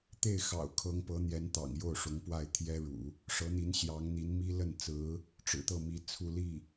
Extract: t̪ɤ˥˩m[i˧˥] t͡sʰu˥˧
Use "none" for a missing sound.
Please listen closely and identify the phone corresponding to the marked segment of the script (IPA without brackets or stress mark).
i˧˥